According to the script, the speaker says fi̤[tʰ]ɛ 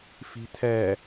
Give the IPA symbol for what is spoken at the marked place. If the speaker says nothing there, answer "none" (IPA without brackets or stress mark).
tʰ